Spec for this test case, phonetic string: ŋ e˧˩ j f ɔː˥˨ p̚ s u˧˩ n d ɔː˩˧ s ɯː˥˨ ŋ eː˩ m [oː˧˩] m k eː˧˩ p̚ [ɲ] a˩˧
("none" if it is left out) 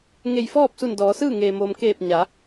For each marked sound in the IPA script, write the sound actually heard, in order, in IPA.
oː˩, ɲ

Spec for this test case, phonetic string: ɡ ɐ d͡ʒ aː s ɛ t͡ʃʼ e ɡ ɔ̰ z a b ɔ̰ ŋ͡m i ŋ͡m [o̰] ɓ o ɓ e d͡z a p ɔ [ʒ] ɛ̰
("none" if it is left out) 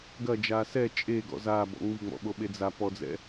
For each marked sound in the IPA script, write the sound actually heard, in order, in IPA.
ɔ̰, d͡z

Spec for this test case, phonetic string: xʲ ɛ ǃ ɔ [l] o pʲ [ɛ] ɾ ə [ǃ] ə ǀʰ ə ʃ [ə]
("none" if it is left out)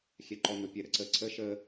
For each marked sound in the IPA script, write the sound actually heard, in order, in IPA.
n, ɛ, ǀ, ə

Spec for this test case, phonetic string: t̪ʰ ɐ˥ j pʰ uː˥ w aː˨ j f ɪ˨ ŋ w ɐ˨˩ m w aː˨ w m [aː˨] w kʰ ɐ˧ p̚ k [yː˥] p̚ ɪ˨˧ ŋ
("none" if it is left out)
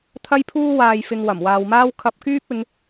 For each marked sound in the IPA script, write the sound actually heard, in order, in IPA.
aː˥, yː˥

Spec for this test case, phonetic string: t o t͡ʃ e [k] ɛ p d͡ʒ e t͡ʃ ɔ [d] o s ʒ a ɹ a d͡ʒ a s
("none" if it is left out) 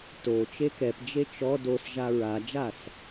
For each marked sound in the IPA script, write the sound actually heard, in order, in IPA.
k, d

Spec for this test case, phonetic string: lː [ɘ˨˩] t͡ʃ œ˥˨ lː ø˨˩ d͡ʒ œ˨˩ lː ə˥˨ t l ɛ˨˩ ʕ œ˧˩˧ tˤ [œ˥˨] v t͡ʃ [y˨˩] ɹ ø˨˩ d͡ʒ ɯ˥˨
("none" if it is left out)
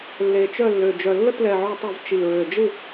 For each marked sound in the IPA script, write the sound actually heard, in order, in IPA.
e˨˩, œ˧˩˧, i˨˩

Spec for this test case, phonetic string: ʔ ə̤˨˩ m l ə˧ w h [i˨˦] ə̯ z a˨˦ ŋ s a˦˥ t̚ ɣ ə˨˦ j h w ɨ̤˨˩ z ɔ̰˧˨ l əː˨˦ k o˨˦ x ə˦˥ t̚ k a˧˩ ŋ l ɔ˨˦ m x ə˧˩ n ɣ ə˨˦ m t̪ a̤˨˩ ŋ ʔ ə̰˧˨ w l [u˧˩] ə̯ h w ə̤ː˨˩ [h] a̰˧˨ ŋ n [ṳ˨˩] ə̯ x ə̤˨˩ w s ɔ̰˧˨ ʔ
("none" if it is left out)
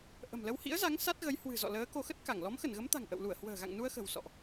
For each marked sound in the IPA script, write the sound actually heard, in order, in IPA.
ḭ˧˥, u˧˩, ɣ, u˧

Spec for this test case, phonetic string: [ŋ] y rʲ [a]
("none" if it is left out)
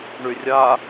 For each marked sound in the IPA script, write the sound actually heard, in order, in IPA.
ɳ, a

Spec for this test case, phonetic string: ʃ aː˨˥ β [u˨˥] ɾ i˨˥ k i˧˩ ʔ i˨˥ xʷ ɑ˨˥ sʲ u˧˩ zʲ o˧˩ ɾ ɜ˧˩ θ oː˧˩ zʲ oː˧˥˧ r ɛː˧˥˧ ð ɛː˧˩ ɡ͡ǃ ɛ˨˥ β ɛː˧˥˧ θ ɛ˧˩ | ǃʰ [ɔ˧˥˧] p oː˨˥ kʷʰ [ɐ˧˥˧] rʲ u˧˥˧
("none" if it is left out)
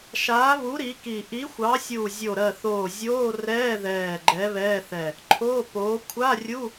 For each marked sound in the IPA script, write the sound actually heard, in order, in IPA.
u˨˥, o˧˥˧, a˧˥˧

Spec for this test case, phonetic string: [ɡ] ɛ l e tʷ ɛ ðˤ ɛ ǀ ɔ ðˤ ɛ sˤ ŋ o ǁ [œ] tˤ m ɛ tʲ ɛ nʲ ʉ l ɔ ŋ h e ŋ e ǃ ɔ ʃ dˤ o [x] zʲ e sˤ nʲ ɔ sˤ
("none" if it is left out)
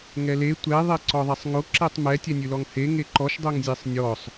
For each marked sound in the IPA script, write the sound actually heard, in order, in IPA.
ŋ, ɛ, ŋ

